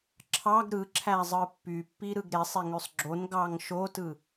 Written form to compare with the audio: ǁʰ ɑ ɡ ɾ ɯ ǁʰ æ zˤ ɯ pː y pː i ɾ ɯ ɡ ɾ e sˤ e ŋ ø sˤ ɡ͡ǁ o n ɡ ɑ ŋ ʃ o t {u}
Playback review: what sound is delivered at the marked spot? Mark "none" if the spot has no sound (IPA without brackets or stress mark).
ɯ